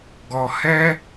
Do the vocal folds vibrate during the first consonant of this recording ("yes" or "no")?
yes